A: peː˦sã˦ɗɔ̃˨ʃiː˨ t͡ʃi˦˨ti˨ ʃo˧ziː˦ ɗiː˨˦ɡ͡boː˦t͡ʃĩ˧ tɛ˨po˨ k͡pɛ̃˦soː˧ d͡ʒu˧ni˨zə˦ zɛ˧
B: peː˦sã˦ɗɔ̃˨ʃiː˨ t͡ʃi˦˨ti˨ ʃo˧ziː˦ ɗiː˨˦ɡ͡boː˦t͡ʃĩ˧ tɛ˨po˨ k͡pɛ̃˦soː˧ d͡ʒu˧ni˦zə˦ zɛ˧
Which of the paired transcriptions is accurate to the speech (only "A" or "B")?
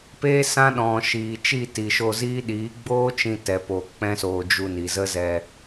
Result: A